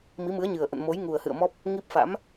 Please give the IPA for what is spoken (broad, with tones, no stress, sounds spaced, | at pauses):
m i˨˦ m ɨ˨˦ ə̯ ɲ ɨ˨˩ ə̯ ʔ ə̰˧˨ n m o˨˦ j ŋ u˨˩ ə̯ h ɨ̰˧˨ ə̯ m ɔ˦˥ p̚ | ŋ i˦˥ p̚ f a̰˧˥ m